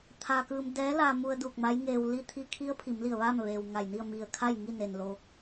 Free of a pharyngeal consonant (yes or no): yes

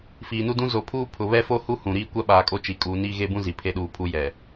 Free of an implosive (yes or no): no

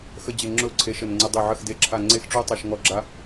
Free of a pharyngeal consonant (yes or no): no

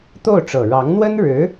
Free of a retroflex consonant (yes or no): no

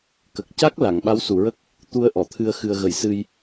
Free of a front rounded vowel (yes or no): yes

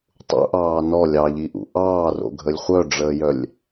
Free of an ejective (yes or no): yes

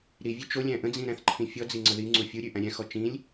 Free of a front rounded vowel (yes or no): yes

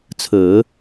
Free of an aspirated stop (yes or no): no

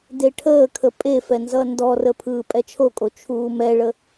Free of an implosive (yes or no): yes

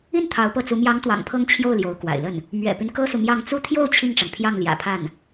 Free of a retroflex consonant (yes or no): no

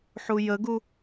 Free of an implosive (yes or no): yes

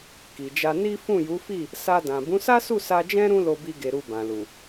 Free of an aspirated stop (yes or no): yes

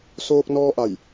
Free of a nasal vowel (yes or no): yes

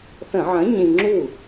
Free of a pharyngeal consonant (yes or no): no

